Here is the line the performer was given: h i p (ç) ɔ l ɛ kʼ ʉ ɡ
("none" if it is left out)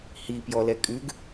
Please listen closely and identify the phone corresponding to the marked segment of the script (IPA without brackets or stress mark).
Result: j